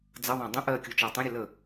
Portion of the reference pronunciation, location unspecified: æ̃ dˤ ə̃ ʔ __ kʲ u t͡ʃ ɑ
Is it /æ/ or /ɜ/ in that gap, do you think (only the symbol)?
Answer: ɜ